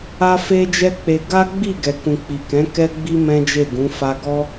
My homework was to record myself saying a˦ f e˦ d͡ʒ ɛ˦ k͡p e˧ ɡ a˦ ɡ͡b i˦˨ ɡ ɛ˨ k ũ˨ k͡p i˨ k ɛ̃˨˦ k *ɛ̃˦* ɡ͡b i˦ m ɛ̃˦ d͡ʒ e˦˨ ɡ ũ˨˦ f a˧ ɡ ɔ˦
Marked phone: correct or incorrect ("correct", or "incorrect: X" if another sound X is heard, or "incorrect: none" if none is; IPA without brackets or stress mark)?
incorrect: ɛ˦